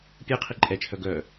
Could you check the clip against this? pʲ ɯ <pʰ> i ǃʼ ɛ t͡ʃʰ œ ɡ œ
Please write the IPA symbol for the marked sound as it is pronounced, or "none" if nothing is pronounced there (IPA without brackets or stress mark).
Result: qʰ